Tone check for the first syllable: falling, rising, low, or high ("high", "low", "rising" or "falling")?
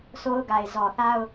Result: high